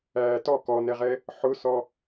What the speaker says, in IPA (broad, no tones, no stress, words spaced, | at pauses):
æːtɔ kɔnɛʁɛ | ħʊsɔ